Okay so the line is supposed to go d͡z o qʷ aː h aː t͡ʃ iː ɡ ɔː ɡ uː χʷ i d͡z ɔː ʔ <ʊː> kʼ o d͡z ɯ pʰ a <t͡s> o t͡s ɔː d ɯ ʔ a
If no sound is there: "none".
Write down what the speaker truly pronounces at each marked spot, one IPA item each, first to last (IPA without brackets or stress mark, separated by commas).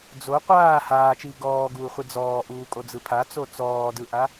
uː, t͡s